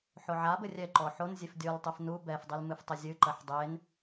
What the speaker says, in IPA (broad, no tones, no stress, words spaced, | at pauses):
ħoʕabɘ rʲɛǃɔ ħon zʲefdʲɔltˤɨf nu bɛfdˤil mɨftˤɘzʲɨǃɐħ dˤen